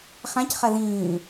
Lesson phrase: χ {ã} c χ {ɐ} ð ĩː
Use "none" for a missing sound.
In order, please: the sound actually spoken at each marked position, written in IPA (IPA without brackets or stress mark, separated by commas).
ã, ɐ